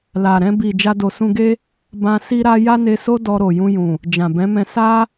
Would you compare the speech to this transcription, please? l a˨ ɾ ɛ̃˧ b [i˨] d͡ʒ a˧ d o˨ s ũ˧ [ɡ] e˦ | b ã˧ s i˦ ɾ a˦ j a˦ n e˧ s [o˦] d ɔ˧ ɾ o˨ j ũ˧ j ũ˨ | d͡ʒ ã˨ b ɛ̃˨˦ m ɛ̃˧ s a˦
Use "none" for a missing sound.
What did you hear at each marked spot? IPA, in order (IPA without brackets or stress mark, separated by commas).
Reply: i˨, ɡ, o˦